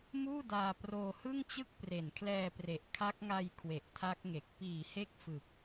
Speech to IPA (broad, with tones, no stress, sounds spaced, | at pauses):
m uː˥˩ d aː˧ p r oː˧ h ɯ˥˩ ŋ t͡ɕ ɯ˥˩ k̚ p r e˨˩ n kʰ l ɛː˧ p r e˨˩ ʔ kʰ a˦˥ k̚ ŋ a˧ j kʰ w e˨˩ ʔ tʰ a˦˥ k̚ ŋ e˨˩ k̚ p iː˨˩ h e˦˥ k̚ f ɯ˨˩ k̚